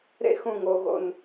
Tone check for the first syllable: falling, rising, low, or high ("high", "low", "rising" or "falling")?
high